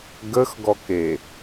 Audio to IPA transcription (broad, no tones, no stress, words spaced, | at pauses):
ɡəxɡɔke